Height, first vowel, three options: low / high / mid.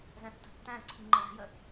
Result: low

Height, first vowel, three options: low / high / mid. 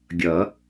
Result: mid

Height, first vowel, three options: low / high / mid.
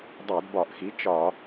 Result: low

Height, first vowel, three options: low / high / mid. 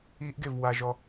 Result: high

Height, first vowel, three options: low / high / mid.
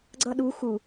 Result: mid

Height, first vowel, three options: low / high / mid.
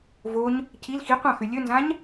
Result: mid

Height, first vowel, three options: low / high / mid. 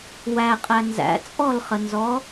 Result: low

